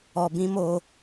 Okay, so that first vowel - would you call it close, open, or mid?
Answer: mid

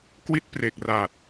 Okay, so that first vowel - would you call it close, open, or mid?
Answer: close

